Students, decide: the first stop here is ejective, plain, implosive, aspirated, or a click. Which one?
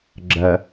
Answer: click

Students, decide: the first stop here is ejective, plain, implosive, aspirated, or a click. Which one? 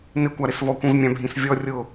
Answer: plain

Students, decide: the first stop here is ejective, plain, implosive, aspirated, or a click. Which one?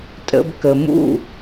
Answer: ejective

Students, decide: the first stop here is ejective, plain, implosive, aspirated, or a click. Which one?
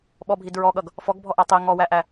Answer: implosive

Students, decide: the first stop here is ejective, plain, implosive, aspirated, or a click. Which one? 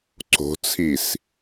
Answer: click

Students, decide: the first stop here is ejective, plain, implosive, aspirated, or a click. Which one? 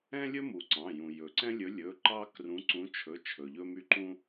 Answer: click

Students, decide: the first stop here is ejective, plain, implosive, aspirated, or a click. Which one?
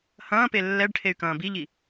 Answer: plain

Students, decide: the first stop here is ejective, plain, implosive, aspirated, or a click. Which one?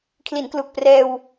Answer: aspirated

